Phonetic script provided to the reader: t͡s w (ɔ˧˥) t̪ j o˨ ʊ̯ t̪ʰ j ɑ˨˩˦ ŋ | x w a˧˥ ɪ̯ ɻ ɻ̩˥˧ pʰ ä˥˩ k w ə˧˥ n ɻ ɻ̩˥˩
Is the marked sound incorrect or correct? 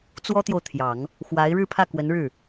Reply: incorrect